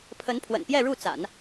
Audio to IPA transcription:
pʰ ə˧˥ n pʰ w ə̰˨˩ n p j ɛ˥˧ ɻ u˥˩ t͡s a̰˨˩˦ n

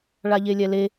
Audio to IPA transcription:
ɭ a ʎ e lʲ ɛ l e

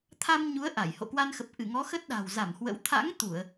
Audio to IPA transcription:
t̪ʰ a˧ m ɲ u˨˦ ə̯ ʔ a˧˩ j h o̰˧˨ k w a˧ n x ə˨˩ p̚ ʔ ɨ˧˩ ŋ ɔ˨˦ x ə˦˥ t̚ ɗ a̤˨˩ w z a˧˩ m h w ə̰˧˥ w t̪ʰ a̰˧˥ ŋ t̪ u˧˩˨ ə̯

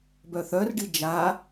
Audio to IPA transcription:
b œ θ œ r ɖ i d͡ʒ a

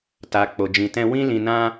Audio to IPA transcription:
t a˨ k͡p o˨ d͡ʒ ĩ˨ t ɛ̃˧ w ĩ˦ l ĩ˧ n ã˦

